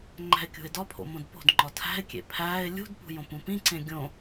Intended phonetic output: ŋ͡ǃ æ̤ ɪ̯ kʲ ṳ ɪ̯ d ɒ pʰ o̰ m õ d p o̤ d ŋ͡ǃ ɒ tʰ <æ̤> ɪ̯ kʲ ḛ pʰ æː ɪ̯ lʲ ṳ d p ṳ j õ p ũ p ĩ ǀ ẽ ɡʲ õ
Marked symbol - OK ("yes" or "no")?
yes